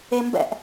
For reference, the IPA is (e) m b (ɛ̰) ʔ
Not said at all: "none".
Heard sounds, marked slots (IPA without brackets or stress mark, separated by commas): e, ɛ̰